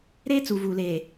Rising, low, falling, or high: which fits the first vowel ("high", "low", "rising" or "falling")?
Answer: high